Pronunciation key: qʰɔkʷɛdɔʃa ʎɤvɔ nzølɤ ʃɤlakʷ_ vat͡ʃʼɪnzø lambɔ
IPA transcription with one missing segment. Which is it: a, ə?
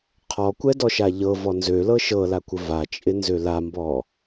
ə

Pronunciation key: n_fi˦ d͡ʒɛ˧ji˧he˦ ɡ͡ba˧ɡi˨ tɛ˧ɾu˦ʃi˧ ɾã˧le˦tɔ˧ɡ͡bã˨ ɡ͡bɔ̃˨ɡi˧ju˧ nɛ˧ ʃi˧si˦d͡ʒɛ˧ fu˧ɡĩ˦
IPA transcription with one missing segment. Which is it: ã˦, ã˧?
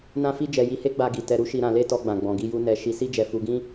ã˦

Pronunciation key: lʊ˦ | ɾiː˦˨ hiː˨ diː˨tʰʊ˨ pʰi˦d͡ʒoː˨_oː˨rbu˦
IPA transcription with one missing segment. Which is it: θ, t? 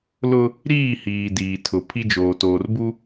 t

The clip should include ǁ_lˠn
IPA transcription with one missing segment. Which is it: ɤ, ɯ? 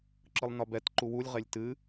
ɯ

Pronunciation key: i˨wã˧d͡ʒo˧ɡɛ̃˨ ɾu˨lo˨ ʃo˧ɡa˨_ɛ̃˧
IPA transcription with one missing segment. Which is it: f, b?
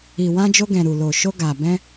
b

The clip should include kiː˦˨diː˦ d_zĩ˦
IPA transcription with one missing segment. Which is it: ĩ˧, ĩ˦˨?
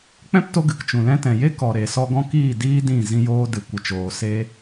ĩ˦˨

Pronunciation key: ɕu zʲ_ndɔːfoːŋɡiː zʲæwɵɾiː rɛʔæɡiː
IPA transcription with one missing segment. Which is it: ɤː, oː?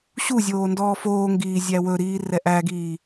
oː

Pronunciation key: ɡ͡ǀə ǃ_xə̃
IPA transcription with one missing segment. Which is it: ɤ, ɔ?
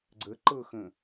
ɤ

